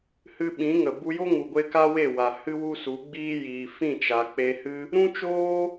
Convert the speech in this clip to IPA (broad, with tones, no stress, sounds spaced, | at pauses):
h ɨ˧ ɓ ĩ˨˦ ŋ ə˨ b u˧ j o˦ ŋ u˨ ɡʷ e˧ k a˦ w e˦˨ w a˨ h ɨ˦ w u˦ s u˨˦ ɡ͡b iː˦ j iː˨ f ĩ˦˨ t͡ʃ a˨ k͡p e˧ h ɨ˦ | ɾ ũ˦ t͡ʃ oː˦